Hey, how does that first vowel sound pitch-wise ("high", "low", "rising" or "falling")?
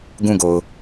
falling